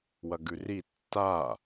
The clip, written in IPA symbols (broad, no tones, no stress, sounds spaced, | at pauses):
w ɐ ɡ ʉ r i tː a